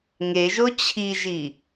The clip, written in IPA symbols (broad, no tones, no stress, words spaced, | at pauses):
ŋeʒo t͡ɕʰiʒi